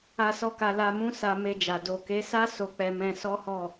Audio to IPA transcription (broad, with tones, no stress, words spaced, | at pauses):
a˦sɔ˦ka˧ la˧mũ˦ sa˧ me˧d͡ʒa˨ do˨ke˨˦sa˦ so˧k͡pɛ˧mɛ̃˧ sɔ˦hɔ˦˨